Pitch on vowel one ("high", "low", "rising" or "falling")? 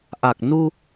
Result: low